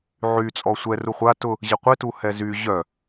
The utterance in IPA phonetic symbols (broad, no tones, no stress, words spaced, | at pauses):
ʕy t͡sʼɔsʷɛ ruχʷa tʊ | ʑɪqʷɪ tuhɛzy ʑœ